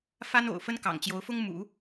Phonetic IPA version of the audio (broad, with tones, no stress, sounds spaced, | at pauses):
f a˥ n o̰˨˩ ʊ̯ f ə˥ n k ɑ̰˨˩ ŋ t͡ɕ j o˧˥ ʊ̯ f ʊ˥ ŋ m ṵ˨˩˦